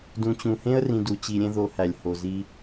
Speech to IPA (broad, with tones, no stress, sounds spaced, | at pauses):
d ũ˨ t͡ɕ ũ˨ h ẽ˦ ə̯ r ĩ˧ d u˧ t͡ɕ i˧ ɾʲ ẽ˦ ð o˧ h æ˨ lʲ h o˨ z i˧